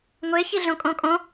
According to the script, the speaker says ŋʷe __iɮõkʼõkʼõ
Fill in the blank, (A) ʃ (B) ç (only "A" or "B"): B